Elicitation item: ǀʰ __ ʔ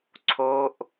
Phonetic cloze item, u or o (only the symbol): o